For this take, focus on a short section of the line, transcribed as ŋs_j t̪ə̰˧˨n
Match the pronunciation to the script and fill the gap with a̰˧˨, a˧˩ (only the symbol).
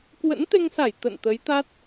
a˧˩